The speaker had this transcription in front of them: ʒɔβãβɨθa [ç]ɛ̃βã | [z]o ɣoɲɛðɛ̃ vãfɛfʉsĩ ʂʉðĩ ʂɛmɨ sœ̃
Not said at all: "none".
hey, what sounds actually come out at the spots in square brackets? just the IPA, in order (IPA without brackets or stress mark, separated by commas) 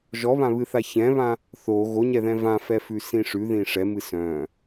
ç, θ